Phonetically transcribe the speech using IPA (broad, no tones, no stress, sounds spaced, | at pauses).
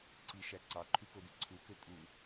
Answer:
ǀ i ʃ æ ǀ ɑ ǃʰ y k o d i ǀʰ u k ø tʼ u